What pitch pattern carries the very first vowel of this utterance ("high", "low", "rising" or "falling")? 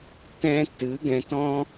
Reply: high